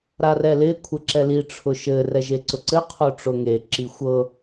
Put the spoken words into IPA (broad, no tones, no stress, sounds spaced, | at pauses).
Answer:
ɾ a r ɛ l ɪ kʷʰ ɘ ǁ ɛ l i ʈ͡ʂʰ ʊ ʃ ɘ r ɛ ʒ e ǀ ʊ ǀ ɘ qʰ o ʈ͡ʂ ʊ ŋ e ǁ i xʷ ɤ